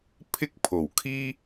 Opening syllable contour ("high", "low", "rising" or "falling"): high